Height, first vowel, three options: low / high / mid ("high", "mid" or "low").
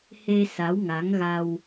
mid